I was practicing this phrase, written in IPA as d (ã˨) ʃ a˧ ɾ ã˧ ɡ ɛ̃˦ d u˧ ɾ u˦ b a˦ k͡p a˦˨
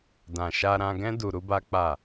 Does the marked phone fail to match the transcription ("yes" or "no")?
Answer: no